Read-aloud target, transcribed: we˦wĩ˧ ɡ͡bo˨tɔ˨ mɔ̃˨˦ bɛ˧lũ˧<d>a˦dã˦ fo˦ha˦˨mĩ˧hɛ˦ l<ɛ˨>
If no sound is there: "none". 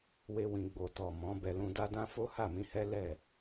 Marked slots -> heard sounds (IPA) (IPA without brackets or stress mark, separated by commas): d, ɛ˦˨